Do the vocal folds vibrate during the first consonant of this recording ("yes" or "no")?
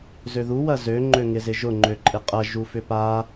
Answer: yes